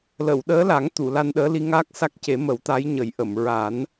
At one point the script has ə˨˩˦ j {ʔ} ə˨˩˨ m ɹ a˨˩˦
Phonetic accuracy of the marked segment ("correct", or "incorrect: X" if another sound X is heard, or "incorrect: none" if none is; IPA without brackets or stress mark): correct